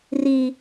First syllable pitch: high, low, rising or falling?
high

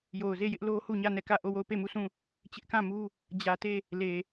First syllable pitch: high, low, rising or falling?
low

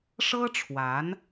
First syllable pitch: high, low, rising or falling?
high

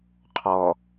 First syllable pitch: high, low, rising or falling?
low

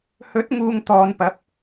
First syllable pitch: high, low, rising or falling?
rising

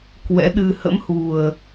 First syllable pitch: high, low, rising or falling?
rising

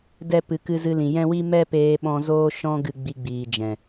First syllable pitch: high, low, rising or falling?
high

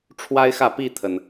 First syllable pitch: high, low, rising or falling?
high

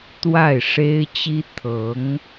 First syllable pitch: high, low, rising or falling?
falling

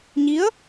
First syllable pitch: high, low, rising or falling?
rising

